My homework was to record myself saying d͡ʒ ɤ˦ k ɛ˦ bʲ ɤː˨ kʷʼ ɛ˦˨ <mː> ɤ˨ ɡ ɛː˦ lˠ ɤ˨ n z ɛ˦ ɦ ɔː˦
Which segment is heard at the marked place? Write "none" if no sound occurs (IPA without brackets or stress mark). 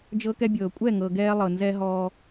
ŋ